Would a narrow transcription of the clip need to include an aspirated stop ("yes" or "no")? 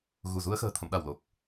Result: yes